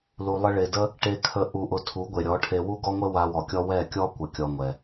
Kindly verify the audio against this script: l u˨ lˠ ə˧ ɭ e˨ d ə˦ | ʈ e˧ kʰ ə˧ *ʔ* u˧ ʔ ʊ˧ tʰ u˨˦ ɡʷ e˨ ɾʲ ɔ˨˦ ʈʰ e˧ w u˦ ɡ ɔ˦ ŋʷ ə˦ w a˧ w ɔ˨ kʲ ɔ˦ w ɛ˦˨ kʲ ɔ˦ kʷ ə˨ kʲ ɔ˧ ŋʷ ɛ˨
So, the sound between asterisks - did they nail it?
yes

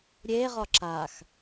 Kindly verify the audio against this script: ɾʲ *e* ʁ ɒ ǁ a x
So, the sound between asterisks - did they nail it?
yes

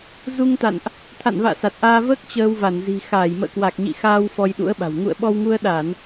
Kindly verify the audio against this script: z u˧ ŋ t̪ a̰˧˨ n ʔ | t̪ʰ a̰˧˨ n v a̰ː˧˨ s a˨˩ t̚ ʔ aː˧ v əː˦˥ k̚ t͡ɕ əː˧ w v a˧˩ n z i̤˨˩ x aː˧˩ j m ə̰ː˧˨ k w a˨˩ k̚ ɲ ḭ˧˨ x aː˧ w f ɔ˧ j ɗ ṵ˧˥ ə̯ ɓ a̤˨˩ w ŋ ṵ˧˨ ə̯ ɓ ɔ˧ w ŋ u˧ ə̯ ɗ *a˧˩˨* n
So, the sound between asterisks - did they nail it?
yes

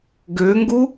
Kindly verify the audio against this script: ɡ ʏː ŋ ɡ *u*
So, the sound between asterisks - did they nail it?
yes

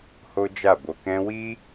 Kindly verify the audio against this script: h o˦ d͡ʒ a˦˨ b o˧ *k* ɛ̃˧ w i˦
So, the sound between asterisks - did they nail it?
yes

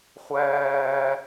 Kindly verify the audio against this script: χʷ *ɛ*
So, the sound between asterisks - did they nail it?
no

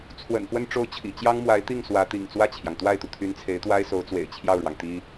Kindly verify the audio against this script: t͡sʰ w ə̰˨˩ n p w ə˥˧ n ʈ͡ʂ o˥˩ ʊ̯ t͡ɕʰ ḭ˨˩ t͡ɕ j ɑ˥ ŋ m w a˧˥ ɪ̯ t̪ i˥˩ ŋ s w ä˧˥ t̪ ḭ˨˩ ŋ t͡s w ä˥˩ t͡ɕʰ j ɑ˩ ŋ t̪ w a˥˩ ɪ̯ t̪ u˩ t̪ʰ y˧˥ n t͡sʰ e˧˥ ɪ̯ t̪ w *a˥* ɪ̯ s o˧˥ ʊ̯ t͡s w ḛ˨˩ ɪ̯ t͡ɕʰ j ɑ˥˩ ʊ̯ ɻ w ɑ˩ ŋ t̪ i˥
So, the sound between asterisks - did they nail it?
yes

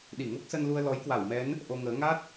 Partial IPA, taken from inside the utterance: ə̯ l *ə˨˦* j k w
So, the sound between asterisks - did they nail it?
no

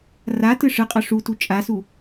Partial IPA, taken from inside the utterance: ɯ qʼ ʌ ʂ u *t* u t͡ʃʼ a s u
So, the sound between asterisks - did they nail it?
yes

